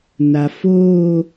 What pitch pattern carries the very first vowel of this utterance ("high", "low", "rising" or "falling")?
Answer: low